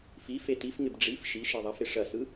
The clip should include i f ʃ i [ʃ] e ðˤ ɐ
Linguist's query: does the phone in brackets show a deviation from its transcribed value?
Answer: no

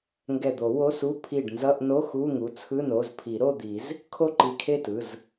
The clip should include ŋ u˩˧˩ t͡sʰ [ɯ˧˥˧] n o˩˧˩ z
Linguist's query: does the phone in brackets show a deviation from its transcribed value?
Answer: no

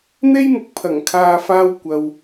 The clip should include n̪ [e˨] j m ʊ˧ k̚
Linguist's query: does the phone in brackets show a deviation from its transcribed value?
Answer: yes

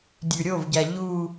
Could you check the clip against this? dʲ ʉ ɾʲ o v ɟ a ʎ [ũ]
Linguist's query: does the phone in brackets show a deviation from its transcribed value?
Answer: yes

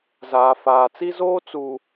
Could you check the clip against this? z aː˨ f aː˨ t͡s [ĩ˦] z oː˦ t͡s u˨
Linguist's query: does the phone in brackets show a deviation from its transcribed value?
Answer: yes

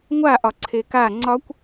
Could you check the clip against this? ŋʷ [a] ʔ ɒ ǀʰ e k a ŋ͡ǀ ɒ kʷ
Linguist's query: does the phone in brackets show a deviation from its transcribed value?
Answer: no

